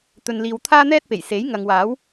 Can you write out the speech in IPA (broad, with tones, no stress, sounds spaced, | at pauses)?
t̪ ɵ˨ n l iː˨ w t̪ʰ aː˥ n̪ ɛː˥ t̚ p e˨˩ j s e˨˥ j ŋ ɐ˨ ŋ w aː˨˥ w